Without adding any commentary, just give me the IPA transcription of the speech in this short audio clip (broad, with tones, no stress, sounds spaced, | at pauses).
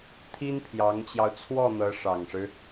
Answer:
t̪ʰ i˥ n pʰ j ɑ˧˥ ŋ t͡ɕ j ɑ˧ ʊ̯ t͡sʰ w ɔ˥˩ n̪ ɤ˧˥ ʂ ɑ˨˩ ŋ ʂ ɻ̩˦